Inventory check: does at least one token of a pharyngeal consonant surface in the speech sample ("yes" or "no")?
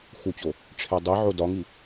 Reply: yes